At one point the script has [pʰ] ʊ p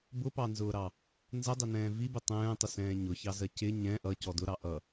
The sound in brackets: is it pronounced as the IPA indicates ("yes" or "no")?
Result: no